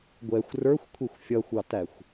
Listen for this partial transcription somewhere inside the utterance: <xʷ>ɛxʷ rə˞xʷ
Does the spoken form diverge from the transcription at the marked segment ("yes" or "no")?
yes